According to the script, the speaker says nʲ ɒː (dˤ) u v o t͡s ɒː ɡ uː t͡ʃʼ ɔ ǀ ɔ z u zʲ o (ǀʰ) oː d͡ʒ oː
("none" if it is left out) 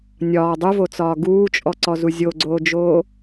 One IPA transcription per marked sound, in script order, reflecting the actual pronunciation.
dˤ, ɡ͡ǀ

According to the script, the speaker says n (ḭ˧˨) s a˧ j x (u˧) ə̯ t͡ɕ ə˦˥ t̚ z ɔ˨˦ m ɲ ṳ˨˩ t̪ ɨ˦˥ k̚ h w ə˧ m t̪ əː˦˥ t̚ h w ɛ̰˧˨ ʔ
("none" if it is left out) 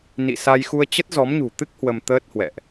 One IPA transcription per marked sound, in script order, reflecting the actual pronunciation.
ḭ˧˨, u˧

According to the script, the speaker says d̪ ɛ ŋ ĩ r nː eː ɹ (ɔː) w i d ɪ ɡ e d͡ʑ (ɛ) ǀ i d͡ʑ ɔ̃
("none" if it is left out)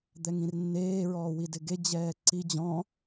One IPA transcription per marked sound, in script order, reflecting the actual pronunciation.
ɔː, ɛː

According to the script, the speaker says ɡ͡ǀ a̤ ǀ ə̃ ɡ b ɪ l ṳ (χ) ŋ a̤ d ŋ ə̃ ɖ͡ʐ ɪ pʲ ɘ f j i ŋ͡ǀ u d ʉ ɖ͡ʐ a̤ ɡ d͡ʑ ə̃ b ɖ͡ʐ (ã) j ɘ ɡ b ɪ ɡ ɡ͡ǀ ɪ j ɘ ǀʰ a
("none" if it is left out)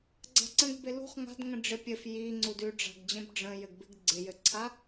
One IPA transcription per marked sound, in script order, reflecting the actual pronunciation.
χ, ə̃

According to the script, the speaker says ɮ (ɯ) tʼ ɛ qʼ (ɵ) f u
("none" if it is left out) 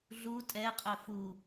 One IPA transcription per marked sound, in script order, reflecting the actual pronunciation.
u, ɵ

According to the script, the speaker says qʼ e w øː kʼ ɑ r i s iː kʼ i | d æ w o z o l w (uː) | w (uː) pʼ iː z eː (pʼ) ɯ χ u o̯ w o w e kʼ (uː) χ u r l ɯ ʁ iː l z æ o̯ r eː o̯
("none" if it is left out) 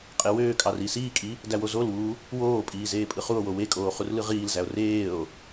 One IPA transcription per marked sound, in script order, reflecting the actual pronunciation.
uː, oː, pʼ, oː

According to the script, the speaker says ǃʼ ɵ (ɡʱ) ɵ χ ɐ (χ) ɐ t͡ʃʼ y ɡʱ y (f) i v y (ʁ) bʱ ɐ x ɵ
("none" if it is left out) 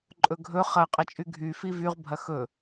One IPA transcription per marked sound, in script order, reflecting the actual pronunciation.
ɡʱ, qʼ, f, ʁ

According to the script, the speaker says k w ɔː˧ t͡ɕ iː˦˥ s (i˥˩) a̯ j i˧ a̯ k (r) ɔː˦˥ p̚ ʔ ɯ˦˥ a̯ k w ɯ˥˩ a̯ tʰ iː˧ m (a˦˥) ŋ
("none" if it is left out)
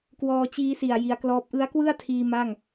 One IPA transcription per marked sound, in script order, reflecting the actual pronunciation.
i˨˩, l, a˥˩

